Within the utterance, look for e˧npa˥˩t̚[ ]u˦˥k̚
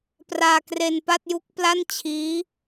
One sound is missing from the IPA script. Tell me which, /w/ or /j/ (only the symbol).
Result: j